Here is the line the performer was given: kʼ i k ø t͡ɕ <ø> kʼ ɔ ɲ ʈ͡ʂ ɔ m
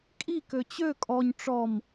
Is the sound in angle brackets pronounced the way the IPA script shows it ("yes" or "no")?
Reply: yes